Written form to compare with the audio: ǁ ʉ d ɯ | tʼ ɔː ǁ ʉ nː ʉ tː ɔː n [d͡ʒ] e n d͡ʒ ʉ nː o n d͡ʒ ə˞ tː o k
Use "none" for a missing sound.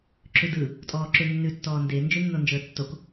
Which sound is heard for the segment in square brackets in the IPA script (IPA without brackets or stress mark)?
d